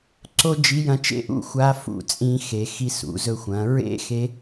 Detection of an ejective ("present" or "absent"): present